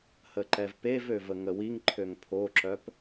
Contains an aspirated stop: yes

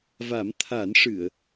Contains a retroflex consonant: yes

